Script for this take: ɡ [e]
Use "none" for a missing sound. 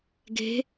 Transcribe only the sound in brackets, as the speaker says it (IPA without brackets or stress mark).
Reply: e̤